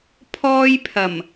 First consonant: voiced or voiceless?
voiceless